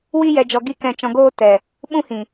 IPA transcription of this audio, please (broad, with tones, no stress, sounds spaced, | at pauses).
w i˦ j ɛ˧ d͡ʒ ɔ˧ ɡ i˦ k ɛ̃˧ t͡ʃ ɔ̃˧ ɡ oː˦ t ɛ˨ | ɓ ũ˦ h ĩ˨